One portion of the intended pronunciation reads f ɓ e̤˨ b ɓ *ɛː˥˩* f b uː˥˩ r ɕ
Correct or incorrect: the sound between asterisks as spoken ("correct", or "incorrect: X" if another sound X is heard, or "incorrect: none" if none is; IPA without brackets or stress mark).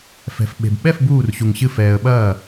incorrect: ɛ˥˩